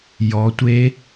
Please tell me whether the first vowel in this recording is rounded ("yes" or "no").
yes